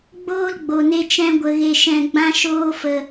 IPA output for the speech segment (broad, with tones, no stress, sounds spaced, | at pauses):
ɡ͡b oː˦ l ɡ͡b o˨ n e˧ t͡ʃ ɛ̃˧ ɡʷ ə˨ ɣ e˨ ʃ ɛ̃˨ ɡ͡b ã˧ ʃ oː˧ f ə˨